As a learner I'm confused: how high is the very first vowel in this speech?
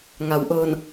low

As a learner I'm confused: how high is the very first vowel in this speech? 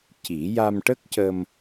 high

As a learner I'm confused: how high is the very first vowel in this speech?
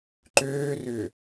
mid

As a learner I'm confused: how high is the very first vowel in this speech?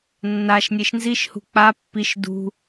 low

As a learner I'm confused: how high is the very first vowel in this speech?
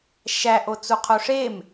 low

